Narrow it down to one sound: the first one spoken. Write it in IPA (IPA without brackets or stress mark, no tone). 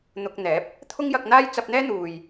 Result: n̪